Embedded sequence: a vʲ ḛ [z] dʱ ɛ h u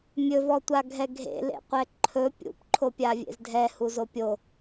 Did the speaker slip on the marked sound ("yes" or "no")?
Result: no